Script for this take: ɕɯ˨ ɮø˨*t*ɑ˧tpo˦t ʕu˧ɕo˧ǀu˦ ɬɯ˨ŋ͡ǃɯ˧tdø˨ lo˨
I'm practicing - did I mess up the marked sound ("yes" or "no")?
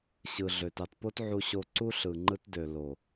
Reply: no